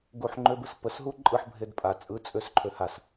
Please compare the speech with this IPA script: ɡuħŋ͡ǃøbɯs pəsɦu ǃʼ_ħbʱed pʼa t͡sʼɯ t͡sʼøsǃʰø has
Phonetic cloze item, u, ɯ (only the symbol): ɯ